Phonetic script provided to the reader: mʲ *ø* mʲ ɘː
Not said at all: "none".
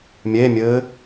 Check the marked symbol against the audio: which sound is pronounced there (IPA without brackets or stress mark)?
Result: e